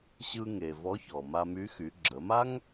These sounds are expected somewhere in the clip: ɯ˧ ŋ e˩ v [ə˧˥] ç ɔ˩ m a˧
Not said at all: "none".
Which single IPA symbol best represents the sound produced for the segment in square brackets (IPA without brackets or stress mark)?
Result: ɔ˧˥